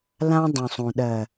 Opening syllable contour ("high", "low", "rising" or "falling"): high